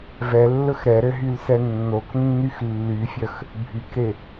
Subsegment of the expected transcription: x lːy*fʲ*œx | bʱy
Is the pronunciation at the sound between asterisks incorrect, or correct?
correct